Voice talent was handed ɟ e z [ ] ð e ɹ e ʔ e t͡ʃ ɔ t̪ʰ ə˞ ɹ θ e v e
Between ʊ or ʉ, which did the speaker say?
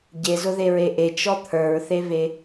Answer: ʊ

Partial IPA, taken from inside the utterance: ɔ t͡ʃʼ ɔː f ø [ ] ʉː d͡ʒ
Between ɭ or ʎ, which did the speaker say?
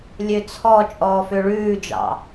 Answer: ɭ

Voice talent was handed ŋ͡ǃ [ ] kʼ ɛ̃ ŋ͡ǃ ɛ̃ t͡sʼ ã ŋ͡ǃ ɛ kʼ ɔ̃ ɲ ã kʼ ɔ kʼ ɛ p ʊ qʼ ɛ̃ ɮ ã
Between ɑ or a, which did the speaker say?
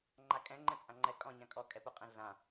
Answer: a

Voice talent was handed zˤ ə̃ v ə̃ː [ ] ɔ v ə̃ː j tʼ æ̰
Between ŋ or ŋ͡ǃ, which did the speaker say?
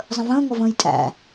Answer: ŋ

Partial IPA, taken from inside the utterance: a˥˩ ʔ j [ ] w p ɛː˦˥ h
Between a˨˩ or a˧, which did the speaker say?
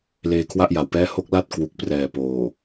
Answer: a˨˩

